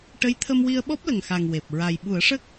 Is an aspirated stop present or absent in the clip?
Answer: present